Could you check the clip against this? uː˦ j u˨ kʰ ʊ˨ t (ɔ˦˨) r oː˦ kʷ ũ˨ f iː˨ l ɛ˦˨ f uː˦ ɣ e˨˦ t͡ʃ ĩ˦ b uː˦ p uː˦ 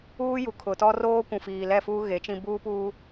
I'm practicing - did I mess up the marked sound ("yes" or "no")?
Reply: yes